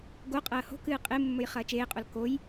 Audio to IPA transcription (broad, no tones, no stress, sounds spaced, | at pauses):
ɡ o qʼ ɐː h o̤ k ɨː qʼ e mː ɵ j χ ɐː t͡ʃ eː qʼ o l k o j